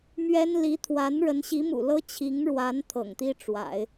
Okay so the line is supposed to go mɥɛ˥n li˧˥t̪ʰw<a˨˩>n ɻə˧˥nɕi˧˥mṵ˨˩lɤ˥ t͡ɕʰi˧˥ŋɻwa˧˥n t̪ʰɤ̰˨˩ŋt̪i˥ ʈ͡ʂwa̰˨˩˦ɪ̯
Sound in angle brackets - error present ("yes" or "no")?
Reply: yes